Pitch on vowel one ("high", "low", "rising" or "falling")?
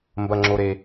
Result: low